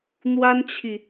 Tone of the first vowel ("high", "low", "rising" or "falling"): high